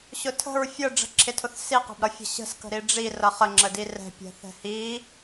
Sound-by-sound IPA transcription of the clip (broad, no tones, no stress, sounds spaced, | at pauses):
ɕ ʊ tʰ ə̤ ɹ fʲ ə ɖ͡ʐ ə̤ ǁʰ ɪ tʰ ʊ θ s i q ɛ̤ b ɾ ʌ fʲ ə̤ ɕ ə̤ s k ə̤ ɾ i ɖ͡ʐ i r ʌ χ ə ŋ͡ǁ ə d i r ɛ̤ pʲ ɛ̤ θ ɛ̤ h i